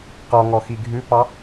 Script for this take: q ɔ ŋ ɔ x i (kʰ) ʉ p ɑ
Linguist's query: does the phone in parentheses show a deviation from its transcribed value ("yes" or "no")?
yes